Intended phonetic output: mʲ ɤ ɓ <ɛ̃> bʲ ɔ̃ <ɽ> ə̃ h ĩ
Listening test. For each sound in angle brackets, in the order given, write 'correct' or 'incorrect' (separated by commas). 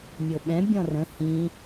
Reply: correct, incorrect